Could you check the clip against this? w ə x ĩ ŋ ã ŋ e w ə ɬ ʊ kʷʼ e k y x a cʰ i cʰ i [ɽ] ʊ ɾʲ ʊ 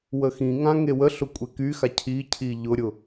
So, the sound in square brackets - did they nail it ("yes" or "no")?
no